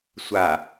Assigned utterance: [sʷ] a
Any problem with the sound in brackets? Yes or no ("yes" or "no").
no